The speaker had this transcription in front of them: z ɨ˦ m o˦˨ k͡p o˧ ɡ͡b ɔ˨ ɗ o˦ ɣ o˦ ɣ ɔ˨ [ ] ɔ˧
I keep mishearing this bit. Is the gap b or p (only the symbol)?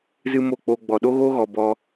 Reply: b